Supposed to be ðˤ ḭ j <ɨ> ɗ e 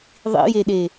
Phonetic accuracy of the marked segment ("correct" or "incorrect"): incorrect